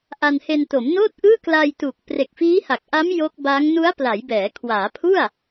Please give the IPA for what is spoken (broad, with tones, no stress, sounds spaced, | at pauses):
ʔ a˧ n h e˧ n t o˩˦ m n oː˥˩ t̚ ʔ ɯː˥˩ k l a˧ j t u˨˩ k̚ p r e˨˩ k̚ f iː˦˥ h a˨˩ k̚ ʔ a˦˥ m j o˦˥ k̚ b a˦˥ ŋ n u˦˥ a̯ p l a˩˦ j b ɛː˩˦ kʰ w aː˩˦ pʰ u˥˩ a̯